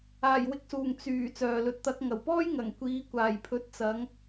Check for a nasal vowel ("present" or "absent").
absent